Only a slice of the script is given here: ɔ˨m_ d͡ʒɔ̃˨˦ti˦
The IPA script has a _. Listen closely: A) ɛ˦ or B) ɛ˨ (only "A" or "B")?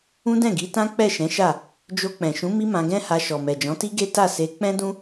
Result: B